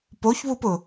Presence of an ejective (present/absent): absent